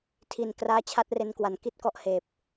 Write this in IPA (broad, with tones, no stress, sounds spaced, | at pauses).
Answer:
tʰ i˨˩ n k r aː˧ t͡ɕʰ a˦˥ t̚ r e˧ n k w a˩˦ n k i˥˩ t̚ k ɔ˦˥ ʔ h eː˨˩ p̚